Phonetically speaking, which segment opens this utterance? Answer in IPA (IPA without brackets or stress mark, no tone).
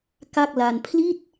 k